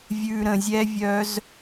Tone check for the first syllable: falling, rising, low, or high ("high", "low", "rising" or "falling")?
low